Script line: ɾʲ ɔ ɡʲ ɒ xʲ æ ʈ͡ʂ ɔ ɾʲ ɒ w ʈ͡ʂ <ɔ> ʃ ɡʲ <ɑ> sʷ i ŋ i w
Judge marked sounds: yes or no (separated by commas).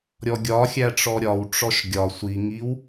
yes, no